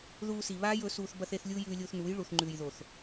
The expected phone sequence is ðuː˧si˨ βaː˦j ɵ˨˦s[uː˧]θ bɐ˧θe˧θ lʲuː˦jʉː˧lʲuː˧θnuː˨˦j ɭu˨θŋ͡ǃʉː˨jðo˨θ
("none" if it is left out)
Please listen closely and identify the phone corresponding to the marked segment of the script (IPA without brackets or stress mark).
uː˧